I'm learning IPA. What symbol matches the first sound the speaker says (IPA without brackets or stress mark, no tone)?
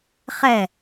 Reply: χ